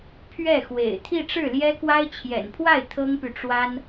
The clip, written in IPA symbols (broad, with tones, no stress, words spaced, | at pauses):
pʰɥɛ˥˩xwḛ˨˩ɪ̯ t̪ʰi˥˧ʈ͡ʂɻ̩˥˩ljɛ˥kwa˥ɪ̯ t͡ɕʰjɛ̰˨˩npʰwa˥˩ɪ̯ t̪ʰɤ˥ŋpy˨ʈ͡ʂwa˥n